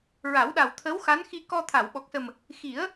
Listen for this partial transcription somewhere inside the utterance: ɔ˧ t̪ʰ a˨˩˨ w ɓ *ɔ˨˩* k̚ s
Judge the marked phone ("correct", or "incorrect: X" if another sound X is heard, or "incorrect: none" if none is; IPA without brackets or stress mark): correct